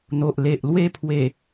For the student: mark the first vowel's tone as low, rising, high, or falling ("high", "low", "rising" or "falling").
low